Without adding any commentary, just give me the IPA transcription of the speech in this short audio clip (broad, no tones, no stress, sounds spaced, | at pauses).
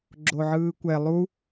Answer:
ɡ͡ǁ o ʕ ɯː kʷ ɛ lˠ u